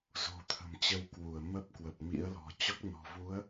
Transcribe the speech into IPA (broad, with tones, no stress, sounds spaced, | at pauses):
z o̤˨˩ t̪ʰ ə̤˨˩ m t͡ɕ ə˨˦ w k w u˧˩ ə̯ m ə˦˥ p̚ k w ə˨˩ p̚ m ḭ˧˥ ə̯ l ɔ̤˨˩ t͡ɕ ɔ˦˥ k̚ n ɔ̤˨˩ v u˨˦ ə̯